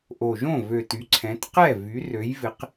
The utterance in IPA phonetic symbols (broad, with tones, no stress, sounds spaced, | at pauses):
ʔ o˨˩ ʒ õ˥˩ v ø˨˩ t y˩˧ ǀʰ ɛ̃˩˧ t q ɛ˥˩ v y˩˧ r ø˩˧ j v ɪ˩˧ q